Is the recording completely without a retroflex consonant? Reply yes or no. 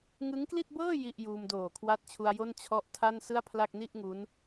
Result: yes